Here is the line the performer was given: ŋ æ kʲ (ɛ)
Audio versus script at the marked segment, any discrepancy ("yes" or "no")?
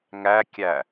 yes